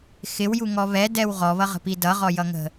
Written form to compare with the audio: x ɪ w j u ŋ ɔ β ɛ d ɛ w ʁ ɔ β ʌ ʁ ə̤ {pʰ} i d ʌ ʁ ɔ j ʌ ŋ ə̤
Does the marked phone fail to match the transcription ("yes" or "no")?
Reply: yes